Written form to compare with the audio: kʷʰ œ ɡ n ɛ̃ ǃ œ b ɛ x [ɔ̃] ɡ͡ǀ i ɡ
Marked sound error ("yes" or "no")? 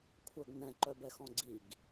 no